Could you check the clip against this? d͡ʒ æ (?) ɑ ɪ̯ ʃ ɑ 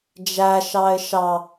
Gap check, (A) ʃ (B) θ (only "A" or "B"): A